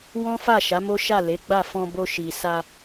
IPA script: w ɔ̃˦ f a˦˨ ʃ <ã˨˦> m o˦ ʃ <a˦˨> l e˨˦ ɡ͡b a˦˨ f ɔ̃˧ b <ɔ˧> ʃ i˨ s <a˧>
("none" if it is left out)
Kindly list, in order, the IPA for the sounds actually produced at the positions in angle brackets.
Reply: a˨˦, a˦˨, o˧, a˧

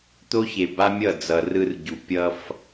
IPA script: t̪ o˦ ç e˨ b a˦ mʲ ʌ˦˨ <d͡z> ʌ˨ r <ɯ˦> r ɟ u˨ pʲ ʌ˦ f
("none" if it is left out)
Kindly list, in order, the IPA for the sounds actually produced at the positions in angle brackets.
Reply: d͡z, ɯ˦

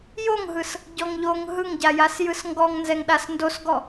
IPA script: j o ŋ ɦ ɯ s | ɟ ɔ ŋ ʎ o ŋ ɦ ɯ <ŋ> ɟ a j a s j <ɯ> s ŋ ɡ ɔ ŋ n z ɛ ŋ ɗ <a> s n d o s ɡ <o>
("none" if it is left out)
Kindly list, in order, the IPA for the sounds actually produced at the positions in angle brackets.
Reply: ŋ, ɯ, a, ɔ

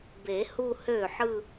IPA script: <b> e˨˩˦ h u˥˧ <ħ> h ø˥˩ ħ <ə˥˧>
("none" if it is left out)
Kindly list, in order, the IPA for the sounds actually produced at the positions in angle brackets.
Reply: b, none, ɯ˥˧

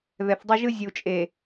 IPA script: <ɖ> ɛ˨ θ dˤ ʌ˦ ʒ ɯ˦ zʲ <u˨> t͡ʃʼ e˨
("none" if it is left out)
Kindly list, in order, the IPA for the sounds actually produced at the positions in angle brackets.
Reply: ð, u˨

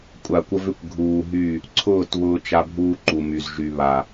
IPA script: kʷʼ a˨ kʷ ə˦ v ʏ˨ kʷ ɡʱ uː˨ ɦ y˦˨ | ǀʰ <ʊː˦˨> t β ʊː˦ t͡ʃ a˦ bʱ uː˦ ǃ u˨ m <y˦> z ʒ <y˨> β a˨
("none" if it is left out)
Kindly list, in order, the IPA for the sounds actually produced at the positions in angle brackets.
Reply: ʊː˦˨, y˨, y˨

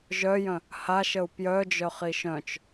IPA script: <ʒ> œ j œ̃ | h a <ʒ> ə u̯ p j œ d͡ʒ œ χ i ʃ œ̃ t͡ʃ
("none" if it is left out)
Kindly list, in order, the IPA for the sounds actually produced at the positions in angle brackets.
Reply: ʒ, ʃ

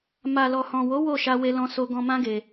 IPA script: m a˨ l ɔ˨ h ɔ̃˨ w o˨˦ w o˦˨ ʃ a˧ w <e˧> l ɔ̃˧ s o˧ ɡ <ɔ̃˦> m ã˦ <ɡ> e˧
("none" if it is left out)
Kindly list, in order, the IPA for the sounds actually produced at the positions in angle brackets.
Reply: e˧, ɔ̃˧, ɡ

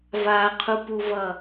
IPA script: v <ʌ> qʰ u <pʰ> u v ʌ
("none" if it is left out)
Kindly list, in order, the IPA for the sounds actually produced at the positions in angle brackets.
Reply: a, p

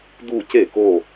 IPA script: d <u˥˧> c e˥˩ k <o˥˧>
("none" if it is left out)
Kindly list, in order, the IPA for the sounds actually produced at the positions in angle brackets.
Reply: u˥˧, o˥˧

